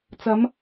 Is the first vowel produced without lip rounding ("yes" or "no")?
yes